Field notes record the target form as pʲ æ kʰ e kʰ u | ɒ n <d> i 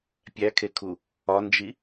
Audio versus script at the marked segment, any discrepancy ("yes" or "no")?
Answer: yes